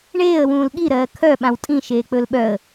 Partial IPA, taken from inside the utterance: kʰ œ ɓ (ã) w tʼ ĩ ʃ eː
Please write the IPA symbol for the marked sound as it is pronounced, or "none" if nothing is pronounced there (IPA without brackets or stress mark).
ã